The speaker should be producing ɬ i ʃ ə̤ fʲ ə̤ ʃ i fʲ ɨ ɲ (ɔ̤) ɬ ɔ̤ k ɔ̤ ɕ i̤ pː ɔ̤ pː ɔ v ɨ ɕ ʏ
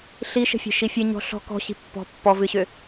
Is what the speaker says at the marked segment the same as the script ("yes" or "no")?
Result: yes